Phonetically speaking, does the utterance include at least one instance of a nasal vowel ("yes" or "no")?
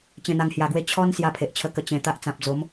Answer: yes